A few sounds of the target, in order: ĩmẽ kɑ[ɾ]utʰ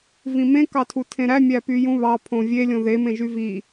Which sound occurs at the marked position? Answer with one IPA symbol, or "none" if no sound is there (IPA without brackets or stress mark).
tʰ